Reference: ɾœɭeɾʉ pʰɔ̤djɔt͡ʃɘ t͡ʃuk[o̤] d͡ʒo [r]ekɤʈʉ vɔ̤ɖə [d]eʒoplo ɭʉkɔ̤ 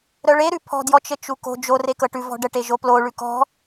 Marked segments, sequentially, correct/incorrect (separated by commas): correct, correct, incorrect